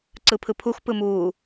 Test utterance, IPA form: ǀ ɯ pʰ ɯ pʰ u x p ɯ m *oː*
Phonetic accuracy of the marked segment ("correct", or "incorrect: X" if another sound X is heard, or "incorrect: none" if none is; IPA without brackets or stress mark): incorrect: uː